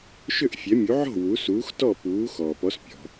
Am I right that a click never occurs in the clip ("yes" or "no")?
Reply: yes